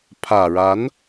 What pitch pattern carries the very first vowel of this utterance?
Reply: low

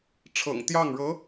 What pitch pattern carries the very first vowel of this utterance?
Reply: low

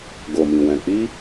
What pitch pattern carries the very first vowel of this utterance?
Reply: low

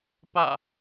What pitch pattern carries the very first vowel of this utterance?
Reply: falling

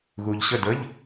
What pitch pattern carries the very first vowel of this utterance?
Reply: low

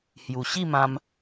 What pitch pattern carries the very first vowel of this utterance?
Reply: low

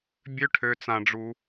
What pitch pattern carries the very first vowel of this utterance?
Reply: high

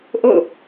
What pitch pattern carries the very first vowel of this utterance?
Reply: falling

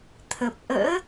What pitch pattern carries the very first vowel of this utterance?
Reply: low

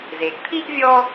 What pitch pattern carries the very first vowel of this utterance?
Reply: low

